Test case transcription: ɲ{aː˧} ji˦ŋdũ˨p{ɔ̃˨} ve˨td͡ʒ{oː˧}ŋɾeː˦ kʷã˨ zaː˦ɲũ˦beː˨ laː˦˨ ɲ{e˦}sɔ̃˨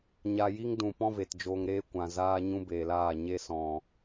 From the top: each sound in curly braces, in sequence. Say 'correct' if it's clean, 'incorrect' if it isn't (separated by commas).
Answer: incorrect, incorrect, correct, correct